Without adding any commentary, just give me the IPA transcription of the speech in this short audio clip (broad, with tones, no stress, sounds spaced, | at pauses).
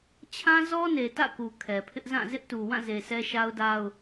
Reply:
t͡ɕʰ ã˦ z ɔ˦ n e˨ t ä̰˦˨ k u˨ kʰ ɛ˨ pʰ ɪ˦ ʔ z ã˦˨ z ɪ˦ ʔ t u˨ w ã˦˨ z e˨ sʰ ɛ˦ ʃ a˦ ʊ̯ d a˦ ʊ̯